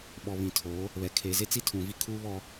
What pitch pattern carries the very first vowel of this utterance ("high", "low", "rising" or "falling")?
low